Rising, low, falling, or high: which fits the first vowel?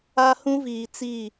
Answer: high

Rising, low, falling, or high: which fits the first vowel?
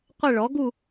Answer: falling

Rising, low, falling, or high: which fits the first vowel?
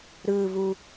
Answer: low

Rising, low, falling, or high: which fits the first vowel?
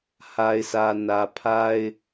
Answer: low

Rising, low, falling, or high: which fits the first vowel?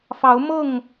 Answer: rising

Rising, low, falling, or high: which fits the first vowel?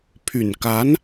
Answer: low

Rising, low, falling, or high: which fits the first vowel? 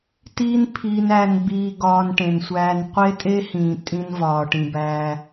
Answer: high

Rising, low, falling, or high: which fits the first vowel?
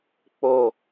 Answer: low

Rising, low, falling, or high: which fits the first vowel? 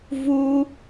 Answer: high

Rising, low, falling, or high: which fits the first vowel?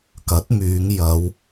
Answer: rising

